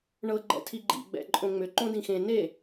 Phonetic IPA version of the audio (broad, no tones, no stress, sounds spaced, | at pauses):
ɳ ɤ ɡ͡ǃ ɛ̰ tʰ i ɡ͡ǃ ḭ ɡ͡b ɛ̰ ǃʼ õ ŋ͡m ʏ ǃ õ d ĩ x ẽ n e